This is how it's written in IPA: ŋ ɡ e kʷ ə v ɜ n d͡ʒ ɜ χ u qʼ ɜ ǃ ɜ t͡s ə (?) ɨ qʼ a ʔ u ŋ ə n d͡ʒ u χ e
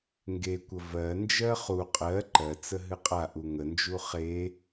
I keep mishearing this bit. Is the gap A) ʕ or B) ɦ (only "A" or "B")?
B